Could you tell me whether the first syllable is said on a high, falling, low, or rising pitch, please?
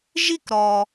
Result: falling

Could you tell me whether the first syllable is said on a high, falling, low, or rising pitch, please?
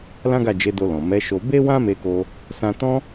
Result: high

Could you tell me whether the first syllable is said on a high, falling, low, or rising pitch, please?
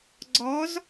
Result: rising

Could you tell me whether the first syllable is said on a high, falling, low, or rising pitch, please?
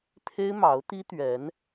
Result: high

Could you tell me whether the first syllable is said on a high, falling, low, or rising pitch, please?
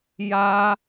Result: high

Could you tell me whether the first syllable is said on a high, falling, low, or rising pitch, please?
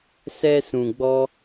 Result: high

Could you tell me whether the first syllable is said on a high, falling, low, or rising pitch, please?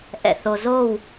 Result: low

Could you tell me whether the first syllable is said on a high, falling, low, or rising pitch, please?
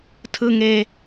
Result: high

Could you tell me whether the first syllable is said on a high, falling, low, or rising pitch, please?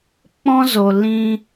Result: high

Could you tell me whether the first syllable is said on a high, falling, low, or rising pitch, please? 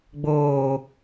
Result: low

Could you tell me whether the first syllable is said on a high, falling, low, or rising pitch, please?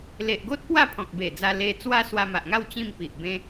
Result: low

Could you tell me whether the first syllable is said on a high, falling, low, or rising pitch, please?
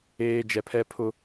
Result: high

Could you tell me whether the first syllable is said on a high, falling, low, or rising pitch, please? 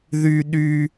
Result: low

